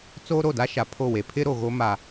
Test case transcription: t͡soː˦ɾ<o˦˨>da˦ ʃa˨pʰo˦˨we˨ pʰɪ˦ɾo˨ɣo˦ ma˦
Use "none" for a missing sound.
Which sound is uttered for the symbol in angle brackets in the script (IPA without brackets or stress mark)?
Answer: o˦˨